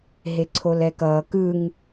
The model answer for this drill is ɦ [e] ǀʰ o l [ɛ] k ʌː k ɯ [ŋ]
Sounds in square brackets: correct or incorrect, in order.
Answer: correct, correct, correct

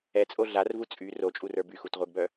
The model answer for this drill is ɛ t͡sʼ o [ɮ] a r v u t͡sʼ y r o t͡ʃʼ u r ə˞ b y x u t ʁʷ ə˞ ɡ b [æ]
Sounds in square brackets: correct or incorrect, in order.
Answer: correct, incorrect: œ

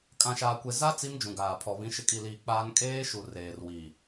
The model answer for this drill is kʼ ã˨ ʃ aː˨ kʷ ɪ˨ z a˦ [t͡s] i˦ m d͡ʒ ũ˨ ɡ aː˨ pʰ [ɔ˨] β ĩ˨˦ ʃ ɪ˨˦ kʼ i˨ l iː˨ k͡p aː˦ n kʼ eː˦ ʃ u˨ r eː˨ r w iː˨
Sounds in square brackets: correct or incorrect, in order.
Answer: correct, correct

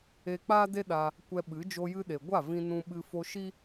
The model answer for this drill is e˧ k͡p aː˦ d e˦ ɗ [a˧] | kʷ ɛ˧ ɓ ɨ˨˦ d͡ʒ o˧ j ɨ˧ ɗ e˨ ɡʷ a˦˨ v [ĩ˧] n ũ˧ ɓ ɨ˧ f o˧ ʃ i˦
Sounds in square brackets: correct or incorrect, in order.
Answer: correct, correct

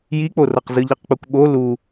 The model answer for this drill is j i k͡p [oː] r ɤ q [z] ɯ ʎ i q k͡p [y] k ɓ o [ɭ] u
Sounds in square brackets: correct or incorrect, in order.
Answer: incorrect: o, correct, incorrect: u, incorrect: l

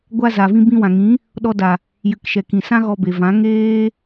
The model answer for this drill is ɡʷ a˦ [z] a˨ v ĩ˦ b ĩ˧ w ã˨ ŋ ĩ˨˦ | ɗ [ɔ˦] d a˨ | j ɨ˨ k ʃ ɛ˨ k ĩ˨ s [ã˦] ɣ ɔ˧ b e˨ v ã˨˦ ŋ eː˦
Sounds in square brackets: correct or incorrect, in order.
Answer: correct, incorrect: ɔ˧, correct

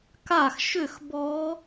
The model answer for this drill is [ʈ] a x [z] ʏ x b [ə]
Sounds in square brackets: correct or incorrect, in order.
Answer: incorrect: k, incorrect: ʃ, incorrect: ɔ

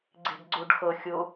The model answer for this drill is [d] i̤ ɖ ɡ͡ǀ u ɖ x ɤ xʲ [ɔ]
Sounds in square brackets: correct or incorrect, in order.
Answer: incorrect: ɡ͡ǀ, incorrect: ʊ

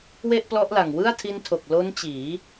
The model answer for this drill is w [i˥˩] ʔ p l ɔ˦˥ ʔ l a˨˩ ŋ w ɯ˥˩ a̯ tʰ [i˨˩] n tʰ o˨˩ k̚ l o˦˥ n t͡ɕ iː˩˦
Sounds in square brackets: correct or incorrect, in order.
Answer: incorrect: e˥˩, incorrect: i˦˥

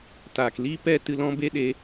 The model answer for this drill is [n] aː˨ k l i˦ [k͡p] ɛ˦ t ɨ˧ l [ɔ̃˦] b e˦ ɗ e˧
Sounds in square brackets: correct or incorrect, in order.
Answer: incorrect: t, incorrect: p, correct

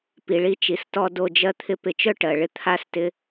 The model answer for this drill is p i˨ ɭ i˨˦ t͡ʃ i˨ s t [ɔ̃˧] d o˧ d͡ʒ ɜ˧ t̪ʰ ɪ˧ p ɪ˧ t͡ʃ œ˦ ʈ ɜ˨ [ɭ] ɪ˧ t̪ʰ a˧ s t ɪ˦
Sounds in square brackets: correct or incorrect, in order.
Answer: incorrect: ɔ˧, correct

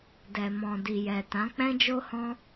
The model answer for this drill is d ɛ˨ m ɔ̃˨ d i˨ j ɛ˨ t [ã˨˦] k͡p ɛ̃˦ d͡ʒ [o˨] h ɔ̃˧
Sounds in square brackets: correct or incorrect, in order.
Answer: correct, incorrect: o˦

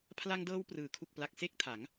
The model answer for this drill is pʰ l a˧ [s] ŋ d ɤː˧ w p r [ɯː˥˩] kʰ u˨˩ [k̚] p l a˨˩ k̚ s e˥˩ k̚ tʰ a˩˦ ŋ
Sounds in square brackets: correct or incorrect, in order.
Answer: incorrect: none, incorrect: ɯː˩˦, correct

